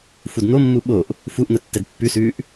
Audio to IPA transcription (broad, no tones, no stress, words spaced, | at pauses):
fudn̪omːu ɓoʔ | fuʔn̪ə tːɛdpːʉsʉːʔ